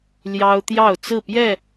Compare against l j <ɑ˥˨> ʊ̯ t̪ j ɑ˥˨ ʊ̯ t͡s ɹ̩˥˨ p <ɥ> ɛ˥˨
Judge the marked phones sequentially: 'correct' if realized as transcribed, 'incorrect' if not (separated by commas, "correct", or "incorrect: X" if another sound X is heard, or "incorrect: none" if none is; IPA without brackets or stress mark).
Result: incorrect: ɑ˦, incorrect: j